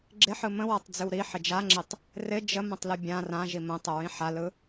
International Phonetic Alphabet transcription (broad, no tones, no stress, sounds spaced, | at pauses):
ɡ͡ǁ ɪ ħ ɯ m ə̃ w a tˤ d͡z ʏ w ɾ i ħ ɪ d͡ʒ a ŋ͡ǁ ɪ tˤ | r ɪ d͡ʒ ə m ə̃ tˤ l ɯ bʲ ã r ã ʒ i m ə̃ tˤ ə ɹ ĩ ħ a l ɯ